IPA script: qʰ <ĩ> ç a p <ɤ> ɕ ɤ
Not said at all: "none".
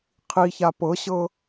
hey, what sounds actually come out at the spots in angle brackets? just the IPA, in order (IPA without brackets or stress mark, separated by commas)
i, ɤ